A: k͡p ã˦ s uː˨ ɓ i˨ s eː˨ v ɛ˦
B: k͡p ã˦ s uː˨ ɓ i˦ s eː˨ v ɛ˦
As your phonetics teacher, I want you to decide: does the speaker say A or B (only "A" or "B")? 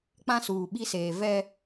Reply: B